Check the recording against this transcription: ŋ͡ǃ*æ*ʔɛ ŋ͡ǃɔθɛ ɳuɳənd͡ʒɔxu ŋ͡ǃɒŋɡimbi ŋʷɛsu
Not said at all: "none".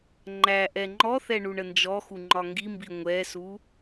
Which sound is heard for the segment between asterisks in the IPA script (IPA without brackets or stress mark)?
æ